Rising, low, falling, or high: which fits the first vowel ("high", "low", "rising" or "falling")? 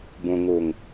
low